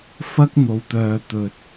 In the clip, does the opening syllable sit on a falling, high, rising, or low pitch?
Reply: high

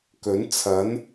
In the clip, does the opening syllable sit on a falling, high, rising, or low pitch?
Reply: rising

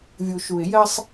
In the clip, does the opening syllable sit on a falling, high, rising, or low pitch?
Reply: low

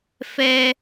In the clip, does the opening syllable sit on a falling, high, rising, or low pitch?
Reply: high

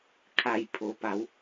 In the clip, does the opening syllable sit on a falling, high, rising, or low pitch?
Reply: low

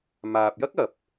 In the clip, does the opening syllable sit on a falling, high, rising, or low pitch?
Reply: low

